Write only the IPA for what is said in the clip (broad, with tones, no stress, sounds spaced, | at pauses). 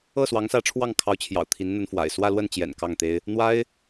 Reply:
ɤ˥˩ s w ɑ˧˥ ŋ s ä˧˥ ʈ͡ʂʰ w ɑ˥˩ ŋ kʰ ɑ˧˥ ʊ̯ t͡ɕʰ j ɑ̰˨˩ ʊ̯ t̪ʰ i˧˥ n n̪ ə˧˥ n f w a̰˨˩ ɪ̯ s w ä˥˧ l w ə˥˩ n t͡ɕ j ɛ̰˨˩ n k ɑ˥˩ ŋ t̪ e˥ ɪ̯ | n̪ w a˥ ɪ̯